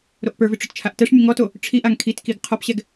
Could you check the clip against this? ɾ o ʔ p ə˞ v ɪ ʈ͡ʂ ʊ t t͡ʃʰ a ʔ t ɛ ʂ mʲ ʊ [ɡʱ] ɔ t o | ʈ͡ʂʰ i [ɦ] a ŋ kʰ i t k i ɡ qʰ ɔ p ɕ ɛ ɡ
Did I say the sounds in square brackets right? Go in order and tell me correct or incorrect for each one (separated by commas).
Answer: incorrect, incorrect